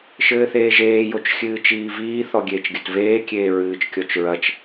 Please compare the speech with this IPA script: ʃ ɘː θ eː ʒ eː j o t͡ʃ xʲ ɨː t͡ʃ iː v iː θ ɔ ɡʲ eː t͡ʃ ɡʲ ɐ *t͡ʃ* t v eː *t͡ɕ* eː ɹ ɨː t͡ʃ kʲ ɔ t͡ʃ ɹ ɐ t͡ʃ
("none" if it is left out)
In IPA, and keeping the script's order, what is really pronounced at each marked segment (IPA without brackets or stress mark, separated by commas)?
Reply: none, kʲ